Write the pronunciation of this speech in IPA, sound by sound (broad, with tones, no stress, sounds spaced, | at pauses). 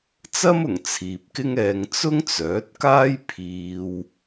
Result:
t͡s ɐ˥ m ʊ˨˩ ŋ t͡sʰ iː˨ p̚ k ɪ˥ ŋ ɛː˧ ŋ t͡s ʊ˥ ŋ t͡s œː˨˥ t̚ k aː˥ j pʰ iː˧ w